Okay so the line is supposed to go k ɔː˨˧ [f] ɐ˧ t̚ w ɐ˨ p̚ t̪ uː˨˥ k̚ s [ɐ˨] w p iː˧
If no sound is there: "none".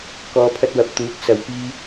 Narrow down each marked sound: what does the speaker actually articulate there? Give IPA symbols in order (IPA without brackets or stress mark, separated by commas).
pʰ, ɐ˨